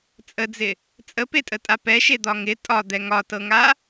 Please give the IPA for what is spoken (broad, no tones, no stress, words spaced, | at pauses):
t͡sʼəd͡zɪ | t͡sʼəpetʼətʼa pɛʃed̪ɒ ŋɪ tʼɒd̪ɛ ŋɒtɤŋa